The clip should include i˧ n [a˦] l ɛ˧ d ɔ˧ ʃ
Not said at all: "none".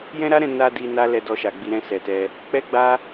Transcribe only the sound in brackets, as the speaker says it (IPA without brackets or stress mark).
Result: a˦